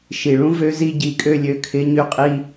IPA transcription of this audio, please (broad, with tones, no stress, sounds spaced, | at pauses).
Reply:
ʃ i˨ ɭ ũ˦ v ø˧ z i˧ ɟ i˧ kʼ ø˦ lʲ ø˧ kʰ ɪ˨˦ ɲ y˧ qʼ i˧